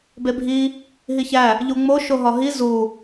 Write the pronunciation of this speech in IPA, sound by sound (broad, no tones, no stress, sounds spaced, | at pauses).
b e bʱ i | ɦ i ç æ | ʎ u ŋ͡m o ʃ o ɦ ɒ ɦ i z u